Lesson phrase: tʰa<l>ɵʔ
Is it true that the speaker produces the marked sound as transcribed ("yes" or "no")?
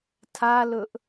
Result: yes